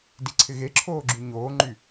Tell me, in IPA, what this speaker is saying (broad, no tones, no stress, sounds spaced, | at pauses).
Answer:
d i ǀʰ ɪ ɣ e ǁʰ oː ɡ͡ǁ y ɲ oː ŋ͡ǃ y